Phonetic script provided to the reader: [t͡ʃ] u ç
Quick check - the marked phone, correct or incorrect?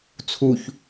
incorrect